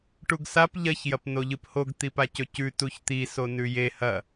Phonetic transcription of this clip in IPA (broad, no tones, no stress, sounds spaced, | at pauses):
ʈ u ɡ s a p ʎ ɐ ç j ɐ p n o ʎ ɨ p h o ɡ t̪ i p a c ɵ c ʉ t u ç t̪ i s o n ʉ j e h ɐ